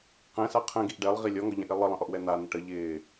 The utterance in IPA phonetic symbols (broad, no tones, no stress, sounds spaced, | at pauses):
q ɛ̃ s a qʰ ə̃ ɡ i ʔ ɖ ɛ lˠ ʁ i lʲ ɔ ŋ ɔ ʎ ã ʔ i lˠ ə lˠ ə̃ ʔ ɔ ʔ w ɛ n̪ a n̪ ə ʈ ə ʎ ɪː